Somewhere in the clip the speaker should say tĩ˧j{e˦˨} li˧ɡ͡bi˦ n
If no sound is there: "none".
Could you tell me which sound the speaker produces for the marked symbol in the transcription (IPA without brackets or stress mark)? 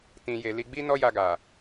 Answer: e˧